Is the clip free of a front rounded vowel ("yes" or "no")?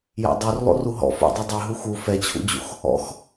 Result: yes